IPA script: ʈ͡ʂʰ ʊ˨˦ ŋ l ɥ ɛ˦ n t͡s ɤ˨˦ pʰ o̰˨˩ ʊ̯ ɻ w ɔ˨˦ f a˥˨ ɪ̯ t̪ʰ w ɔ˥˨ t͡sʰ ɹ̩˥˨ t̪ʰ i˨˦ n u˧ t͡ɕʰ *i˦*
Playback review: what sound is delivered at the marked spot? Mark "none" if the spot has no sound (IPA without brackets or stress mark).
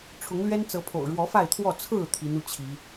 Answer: i˨˦